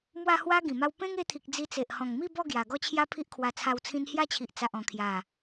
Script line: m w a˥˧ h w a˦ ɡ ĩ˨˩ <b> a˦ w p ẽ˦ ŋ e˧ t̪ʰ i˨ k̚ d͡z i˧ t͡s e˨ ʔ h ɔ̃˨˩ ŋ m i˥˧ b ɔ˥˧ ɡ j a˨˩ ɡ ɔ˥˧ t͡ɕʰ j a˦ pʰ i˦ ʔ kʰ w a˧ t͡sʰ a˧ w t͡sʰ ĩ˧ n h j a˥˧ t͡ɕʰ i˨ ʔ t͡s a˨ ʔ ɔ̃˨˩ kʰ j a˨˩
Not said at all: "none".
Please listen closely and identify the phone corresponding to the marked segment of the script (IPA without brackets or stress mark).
m